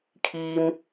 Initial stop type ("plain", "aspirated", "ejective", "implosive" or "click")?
aspirated